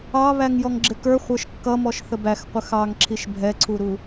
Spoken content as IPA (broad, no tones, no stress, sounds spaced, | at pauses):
ɑ β æ ŋ j ɔ ŋ ɡ͡ǁ ɪ k ə˞ χʷ ə˞ ʃ kː ʌ m ɔ ʃ θ ə b æ x qʷ ə x ɑ ŋ ǁʰ i ʃ bʱ ɛ ǀʰ u ɾ u